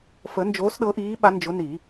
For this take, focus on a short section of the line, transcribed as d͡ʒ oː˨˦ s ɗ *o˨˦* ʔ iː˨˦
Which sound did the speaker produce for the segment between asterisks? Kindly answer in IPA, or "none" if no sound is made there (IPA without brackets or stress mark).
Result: ɤ˨˦